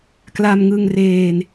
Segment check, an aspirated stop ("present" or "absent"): absent